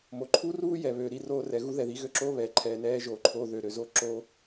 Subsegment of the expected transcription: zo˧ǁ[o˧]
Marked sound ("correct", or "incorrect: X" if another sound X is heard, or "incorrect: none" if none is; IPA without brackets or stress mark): incorrect: oː˧